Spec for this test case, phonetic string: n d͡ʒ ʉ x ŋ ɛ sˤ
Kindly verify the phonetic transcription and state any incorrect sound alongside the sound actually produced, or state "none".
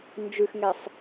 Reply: none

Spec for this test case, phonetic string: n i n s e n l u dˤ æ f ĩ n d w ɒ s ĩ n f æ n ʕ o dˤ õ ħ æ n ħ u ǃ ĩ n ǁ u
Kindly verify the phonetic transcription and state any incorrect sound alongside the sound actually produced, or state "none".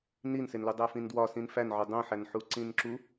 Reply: ǃ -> ǀ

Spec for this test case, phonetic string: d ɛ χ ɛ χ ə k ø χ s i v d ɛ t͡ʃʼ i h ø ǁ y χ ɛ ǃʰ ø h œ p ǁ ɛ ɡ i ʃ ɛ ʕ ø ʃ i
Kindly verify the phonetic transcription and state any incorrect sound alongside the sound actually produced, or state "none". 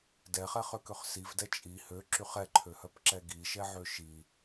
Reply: ə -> ø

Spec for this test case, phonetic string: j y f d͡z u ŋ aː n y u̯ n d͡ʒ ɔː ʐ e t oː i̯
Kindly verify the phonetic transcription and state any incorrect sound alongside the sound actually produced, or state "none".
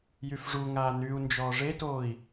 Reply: d͡z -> ʐ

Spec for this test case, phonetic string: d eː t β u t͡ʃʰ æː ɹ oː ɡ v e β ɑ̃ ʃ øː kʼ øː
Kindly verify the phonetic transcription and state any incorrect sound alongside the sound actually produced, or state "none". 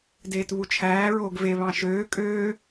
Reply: none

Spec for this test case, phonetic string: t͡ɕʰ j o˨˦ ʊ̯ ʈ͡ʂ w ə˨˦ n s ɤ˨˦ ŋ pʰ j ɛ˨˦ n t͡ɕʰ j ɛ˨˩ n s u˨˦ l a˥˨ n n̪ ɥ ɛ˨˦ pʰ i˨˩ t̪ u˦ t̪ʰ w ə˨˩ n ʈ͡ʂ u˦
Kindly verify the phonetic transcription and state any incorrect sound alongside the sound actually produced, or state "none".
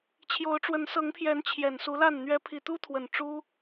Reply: none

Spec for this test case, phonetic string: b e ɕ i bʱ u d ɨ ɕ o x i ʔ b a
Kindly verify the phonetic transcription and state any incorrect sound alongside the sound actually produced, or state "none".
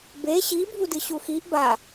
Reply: o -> u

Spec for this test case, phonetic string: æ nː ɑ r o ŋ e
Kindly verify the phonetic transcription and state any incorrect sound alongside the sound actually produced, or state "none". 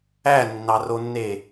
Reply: ŋ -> nː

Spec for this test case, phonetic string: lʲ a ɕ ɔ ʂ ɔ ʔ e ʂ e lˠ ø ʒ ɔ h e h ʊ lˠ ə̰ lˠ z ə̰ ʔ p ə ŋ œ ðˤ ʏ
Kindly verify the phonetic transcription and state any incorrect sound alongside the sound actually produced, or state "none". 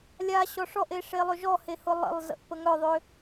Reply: none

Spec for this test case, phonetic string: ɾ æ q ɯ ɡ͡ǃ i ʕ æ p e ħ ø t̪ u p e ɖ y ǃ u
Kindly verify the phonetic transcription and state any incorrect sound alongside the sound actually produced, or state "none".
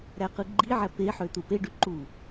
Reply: none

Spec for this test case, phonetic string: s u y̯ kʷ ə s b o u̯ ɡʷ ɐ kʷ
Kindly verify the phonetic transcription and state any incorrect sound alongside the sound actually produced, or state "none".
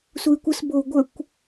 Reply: ɐ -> ə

